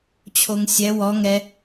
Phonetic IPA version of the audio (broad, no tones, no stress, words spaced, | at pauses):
t͡ɕʰoŋsʲɛ wɔ ŋɛ